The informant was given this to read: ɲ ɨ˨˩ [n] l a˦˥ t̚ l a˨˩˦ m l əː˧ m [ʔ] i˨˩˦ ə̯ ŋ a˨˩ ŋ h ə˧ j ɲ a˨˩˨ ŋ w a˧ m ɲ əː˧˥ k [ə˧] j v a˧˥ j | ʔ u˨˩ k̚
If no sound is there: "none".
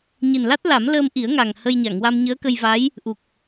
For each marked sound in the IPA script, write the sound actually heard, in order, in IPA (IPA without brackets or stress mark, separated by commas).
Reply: n, ʔ, ə˧